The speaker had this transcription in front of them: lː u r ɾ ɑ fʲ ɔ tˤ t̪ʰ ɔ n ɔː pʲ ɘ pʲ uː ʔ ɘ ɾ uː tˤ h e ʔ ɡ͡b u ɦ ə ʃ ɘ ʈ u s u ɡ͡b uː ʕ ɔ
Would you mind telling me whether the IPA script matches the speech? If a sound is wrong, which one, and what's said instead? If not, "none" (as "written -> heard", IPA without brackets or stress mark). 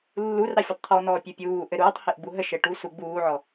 none